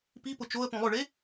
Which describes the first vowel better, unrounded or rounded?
unrounded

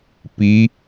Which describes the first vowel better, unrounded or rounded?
unrounded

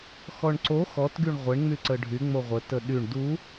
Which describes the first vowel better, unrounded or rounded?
rounded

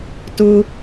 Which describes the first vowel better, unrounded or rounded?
rounded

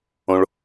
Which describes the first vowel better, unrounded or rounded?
rounded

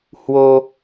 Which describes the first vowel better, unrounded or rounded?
rounded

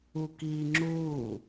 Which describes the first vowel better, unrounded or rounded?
rounded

